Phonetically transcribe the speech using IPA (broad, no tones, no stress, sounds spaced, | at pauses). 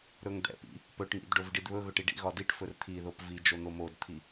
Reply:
ɾ ɵ ŋ d̪ ɛ̰ p ḭ | p ɵ ʈ ŋ ḭ d ɖ o v ɖ i d β ɵ ɣ ɵ ʈ i ɖ ḭ ɣ ɒ d i ʈ f ɵ r t̪ʰ i ð o p v i d͡ʒ o n̪ o m o d t̪ʰ i